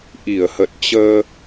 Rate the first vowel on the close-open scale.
close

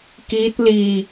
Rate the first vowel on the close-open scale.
close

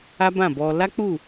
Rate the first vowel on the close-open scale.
open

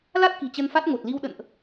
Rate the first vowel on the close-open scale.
open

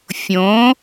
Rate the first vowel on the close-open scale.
mid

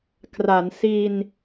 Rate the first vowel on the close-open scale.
open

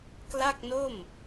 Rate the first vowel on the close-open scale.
open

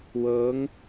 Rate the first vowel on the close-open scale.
mid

